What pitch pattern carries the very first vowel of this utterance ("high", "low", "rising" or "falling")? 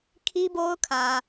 high